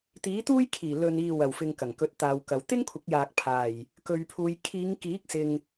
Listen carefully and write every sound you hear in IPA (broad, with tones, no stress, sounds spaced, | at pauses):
t̪ iː˨˥ t̪ uː˥ j kʰ iː˨˩ l ɵ˨ n iː˨ w ɐ˨˩ w f ɪ˨ ŋ k ɐ˨˩ ŋ k ɵ˨˥ t̚ t̪ aː˨ w k ɐ˨ w t̪ ɪ˥ ŋ kʷʰ ɪ˨˥ k̚ j aː˨ k̚ pʰ aː˨˩ j | k ɵ˨ ɥ pʰ uː˨ j kʰ iː˨˧ ŋ k iː˨˥ k̚ s ɪ˨ ŋ